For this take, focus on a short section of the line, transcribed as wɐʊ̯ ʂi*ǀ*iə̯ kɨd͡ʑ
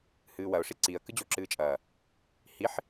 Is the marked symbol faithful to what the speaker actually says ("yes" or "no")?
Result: yes